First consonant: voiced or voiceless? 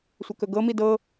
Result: voiceless